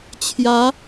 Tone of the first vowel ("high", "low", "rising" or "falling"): rising